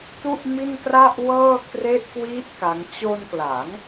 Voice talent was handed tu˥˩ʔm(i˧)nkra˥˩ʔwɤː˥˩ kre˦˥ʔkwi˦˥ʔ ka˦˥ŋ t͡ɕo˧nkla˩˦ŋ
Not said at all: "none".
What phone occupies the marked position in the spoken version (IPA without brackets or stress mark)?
i˥˩